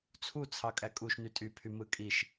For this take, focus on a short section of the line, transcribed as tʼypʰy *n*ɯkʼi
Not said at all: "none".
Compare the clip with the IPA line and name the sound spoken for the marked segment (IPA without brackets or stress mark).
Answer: m